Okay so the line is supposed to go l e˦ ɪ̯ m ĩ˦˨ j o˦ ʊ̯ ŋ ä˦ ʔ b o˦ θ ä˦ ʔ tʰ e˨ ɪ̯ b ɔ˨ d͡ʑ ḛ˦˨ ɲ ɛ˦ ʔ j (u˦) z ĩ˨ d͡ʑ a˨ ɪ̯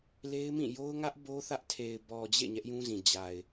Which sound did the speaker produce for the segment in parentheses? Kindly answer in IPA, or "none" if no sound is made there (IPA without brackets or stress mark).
ũ˦